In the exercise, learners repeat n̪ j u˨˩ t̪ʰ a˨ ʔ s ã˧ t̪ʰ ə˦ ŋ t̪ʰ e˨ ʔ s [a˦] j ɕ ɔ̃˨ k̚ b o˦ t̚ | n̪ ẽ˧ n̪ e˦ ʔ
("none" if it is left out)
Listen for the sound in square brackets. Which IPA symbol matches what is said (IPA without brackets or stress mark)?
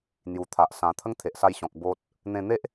a˧